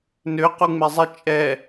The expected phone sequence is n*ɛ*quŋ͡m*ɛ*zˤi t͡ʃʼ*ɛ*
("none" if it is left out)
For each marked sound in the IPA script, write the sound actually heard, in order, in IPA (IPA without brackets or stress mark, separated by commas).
ø, ɛ, ɛ